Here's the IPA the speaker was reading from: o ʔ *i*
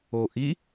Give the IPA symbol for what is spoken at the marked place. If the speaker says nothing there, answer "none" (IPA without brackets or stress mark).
i